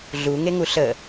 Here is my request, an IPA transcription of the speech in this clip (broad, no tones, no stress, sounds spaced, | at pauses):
ɮ u ŋ e ŋ u ɬ ə